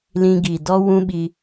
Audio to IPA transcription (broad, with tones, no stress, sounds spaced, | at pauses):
l ĩ˧ ɡ i˨ d ɔ˦ w ũ˦ ɓ i˧